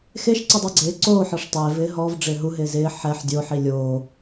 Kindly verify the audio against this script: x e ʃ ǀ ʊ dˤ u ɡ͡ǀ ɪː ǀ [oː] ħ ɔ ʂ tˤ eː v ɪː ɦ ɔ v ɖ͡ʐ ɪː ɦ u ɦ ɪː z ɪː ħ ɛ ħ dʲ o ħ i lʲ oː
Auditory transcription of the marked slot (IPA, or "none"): oː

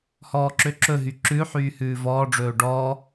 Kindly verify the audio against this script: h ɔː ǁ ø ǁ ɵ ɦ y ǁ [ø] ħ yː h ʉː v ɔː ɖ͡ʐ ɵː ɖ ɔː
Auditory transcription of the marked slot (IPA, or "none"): ʉ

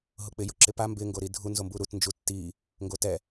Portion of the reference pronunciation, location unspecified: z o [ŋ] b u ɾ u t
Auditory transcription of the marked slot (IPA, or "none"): m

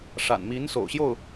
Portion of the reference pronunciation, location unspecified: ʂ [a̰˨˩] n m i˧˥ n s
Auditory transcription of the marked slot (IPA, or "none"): a̰˨˩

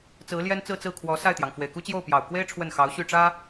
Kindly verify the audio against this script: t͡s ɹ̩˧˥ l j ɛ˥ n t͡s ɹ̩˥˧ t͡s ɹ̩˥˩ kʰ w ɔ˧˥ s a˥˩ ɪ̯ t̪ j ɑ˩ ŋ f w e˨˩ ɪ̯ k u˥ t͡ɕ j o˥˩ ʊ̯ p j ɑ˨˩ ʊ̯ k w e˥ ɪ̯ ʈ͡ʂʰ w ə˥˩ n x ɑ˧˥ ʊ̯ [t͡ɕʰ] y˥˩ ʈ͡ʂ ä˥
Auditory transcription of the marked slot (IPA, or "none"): ɕ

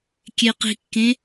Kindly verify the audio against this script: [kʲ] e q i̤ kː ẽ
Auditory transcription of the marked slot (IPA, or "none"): kʲ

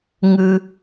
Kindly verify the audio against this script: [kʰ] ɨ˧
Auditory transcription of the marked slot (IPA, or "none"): ŋ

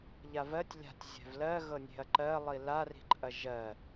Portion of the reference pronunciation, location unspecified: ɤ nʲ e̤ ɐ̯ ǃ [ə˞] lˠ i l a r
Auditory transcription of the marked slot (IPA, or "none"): ɜ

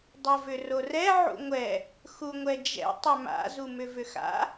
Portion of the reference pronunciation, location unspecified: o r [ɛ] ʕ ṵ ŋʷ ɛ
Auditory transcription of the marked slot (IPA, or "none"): ɛ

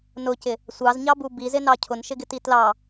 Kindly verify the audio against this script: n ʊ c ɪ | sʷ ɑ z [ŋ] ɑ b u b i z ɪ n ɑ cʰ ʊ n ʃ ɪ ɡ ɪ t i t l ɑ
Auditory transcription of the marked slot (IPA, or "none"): ɲ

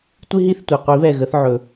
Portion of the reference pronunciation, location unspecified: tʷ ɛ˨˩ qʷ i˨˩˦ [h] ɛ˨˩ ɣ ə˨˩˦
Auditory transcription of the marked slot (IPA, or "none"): β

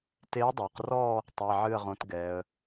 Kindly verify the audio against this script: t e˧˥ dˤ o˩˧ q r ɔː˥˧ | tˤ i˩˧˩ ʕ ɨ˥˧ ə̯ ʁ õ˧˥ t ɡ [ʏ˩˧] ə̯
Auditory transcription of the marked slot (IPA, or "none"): ɛ˩˧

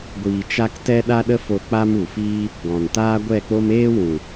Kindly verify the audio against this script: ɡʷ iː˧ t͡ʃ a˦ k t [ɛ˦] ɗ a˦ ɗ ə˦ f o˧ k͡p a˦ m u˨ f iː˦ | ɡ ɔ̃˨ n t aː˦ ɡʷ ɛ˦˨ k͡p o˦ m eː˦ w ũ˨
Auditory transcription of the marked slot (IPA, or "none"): ɛ˦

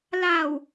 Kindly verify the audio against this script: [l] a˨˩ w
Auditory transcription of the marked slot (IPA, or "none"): l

